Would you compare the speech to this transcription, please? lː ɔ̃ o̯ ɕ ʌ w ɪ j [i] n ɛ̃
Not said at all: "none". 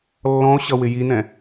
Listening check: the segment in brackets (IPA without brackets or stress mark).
i